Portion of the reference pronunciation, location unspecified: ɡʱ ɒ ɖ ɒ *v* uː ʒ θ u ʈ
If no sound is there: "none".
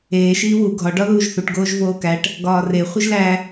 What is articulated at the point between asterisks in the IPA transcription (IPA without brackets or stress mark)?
ð